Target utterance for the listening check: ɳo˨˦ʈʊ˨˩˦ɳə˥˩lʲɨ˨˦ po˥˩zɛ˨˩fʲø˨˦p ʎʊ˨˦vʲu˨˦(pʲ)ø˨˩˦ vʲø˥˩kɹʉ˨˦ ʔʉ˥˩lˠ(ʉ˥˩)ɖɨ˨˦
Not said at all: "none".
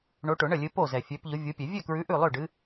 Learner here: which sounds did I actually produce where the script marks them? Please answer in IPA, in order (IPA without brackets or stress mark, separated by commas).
pʲ, ø˥˩